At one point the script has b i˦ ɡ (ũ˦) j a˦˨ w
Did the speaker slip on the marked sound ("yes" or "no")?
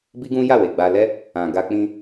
no